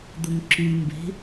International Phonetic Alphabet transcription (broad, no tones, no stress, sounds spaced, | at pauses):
d̪ ʊ ŋ ǁ y m b e̤